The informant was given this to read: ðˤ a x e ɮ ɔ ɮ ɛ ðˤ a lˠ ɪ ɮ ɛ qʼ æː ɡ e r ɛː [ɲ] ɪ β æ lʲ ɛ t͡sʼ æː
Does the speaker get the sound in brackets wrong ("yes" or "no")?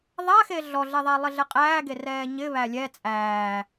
no